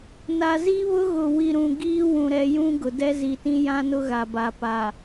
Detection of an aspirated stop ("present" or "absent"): absent